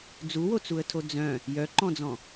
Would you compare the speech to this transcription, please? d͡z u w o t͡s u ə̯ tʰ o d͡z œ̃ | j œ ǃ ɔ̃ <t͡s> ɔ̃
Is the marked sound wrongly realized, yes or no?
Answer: yes